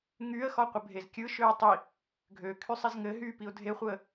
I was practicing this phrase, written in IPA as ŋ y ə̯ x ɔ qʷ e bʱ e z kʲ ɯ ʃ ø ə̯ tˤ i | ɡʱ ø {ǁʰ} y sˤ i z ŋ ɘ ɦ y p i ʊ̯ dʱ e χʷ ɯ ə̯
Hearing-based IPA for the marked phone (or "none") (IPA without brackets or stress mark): kʰ